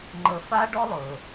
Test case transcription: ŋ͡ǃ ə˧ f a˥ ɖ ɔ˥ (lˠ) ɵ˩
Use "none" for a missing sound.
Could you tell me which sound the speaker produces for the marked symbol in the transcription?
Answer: lˠ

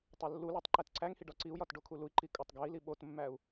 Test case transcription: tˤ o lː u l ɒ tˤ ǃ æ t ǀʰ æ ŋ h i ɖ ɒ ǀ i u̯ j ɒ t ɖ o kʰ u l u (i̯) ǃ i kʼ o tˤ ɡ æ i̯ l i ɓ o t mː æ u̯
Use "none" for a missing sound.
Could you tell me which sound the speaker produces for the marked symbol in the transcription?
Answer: i̯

